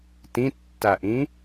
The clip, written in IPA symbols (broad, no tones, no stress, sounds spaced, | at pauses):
t ĩ tː a ʔ ĩ